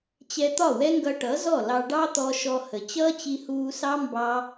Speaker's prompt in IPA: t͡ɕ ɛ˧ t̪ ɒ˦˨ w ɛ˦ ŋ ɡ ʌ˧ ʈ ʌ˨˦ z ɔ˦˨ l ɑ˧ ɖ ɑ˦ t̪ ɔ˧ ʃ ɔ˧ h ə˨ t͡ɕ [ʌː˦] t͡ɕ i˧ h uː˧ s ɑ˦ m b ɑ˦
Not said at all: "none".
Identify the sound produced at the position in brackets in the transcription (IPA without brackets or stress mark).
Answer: ʌː˦